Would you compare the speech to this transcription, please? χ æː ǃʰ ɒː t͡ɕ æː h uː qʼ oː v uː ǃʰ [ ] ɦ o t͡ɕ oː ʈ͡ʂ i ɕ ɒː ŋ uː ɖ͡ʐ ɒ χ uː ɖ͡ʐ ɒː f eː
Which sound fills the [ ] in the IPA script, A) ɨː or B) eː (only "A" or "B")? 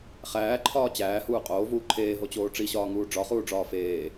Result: B